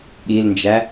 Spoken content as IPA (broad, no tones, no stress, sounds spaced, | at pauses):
ɠ i l n d͡ʒ æ